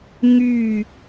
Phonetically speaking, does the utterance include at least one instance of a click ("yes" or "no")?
no